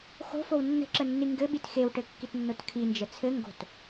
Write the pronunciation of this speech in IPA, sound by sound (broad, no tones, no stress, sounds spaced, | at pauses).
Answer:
x o̤ f o w nː ə̤ ǁ ə nː i ŋ ɡ ɘ ɓ i t x e w ʈ ɘ kː i t nː o t kʰ i n d͡ʒ ə t͡sʰ ɘ ŋ ɡ o̤ t